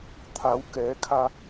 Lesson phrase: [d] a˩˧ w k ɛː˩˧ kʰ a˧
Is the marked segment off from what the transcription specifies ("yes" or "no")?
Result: yes